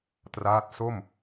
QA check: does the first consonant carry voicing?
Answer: no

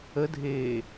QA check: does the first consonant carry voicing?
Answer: yes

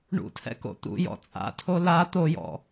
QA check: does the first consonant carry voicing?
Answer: yes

